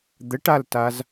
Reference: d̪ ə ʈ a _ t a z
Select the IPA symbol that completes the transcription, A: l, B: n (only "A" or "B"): A